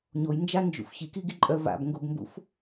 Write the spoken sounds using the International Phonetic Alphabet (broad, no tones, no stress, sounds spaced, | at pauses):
ɲ o j n d͡ʒ a n d͡ʒ ṵ f ç i k i ɡ i ǃʼ œ v a̰ b ŋ ɡ o b m b ṵ f